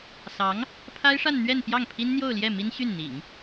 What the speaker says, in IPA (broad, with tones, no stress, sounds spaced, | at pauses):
s ɑ˧˥ ŋ | pʰ a˥ ɪ̯ ʂ a˥˧ n n̪ ɥ ɛ˥˧ n p j ɑ˥˩ ŋ pʰ i˥ n n̪ j o˥˧ ʊ̯ l j ɛ˥˩ m i˥ n ɕ y˥˩ n n̪ ḭ˨˩˦ ŋ